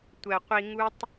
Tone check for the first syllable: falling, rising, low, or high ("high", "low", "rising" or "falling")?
low